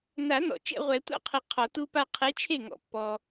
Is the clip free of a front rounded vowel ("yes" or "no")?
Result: yes